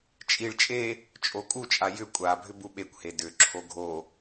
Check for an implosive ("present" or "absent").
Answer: present